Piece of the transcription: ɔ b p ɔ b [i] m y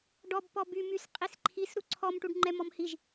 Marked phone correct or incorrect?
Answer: incorrect